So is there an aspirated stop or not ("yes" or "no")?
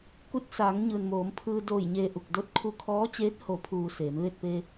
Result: yes